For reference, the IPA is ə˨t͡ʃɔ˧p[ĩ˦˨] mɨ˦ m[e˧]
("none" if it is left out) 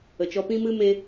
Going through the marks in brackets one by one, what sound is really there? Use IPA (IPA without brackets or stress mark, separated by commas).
ĩ˦, e˧